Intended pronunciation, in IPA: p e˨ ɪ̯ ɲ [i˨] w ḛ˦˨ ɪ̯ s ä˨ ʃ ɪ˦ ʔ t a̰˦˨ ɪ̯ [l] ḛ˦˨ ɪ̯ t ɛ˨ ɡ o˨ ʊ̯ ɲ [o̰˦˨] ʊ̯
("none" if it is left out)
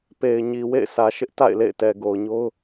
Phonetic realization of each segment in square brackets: i˨, l, o˦

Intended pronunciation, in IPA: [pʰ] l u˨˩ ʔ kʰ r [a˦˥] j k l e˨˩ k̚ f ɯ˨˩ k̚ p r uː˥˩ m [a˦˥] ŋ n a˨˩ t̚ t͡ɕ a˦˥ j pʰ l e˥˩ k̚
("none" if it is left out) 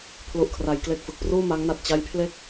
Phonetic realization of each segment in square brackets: pʰ, a˩˦, a˦˥

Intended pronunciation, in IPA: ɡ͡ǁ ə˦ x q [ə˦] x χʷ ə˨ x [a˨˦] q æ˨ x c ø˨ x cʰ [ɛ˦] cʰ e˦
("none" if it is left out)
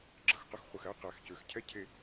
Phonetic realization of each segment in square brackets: ə˦, æ˨˦, ɛ˦

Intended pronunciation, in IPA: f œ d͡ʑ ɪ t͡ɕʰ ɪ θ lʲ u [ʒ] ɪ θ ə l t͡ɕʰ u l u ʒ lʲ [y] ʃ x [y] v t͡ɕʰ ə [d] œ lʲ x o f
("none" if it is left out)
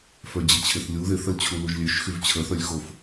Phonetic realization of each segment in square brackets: ð, ø, y, θ

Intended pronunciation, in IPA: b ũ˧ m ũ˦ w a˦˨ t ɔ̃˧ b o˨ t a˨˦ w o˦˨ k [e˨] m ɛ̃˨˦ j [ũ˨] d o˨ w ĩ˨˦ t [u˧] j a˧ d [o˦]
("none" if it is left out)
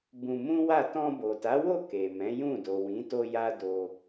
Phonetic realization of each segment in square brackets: e˨, ũ˦˨, o˧, o˧

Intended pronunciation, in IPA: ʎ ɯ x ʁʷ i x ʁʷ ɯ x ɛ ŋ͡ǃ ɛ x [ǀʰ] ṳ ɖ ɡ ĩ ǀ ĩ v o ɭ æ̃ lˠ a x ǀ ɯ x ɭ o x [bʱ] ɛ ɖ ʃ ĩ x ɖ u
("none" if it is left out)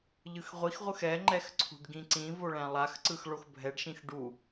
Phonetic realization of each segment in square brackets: ǀʰ, bʱ

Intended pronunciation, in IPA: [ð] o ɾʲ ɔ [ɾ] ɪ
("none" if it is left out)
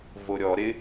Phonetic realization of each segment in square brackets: v, ɾ

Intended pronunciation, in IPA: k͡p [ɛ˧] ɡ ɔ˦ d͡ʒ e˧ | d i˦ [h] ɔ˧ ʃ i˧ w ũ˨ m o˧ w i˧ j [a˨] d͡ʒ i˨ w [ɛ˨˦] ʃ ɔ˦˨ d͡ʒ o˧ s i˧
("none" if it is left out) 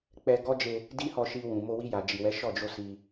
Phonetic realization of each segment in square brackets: ɛ˧, h, a˨, ɛ˨˦

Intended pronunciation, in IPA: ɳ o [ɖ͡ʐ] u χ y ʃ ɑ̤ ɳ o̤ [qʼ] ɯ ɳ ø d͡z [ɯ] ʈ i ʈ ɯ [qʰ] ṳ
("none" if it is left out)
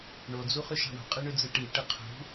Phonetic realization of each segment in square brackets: d͡z, qʼ, ɯ, qʰ

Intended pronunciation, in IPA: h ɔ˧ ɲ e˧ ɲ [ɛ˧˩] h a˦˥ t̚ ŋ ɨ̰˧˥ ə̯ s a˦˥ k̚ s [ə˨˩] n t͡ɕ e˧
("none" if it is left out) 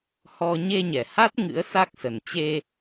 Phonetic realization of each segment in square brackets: ɛ˧˩, ə˨˩

